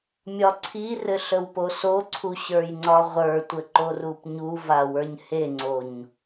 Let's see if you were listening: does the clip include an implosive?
no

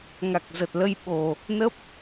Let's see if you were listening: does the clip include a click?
no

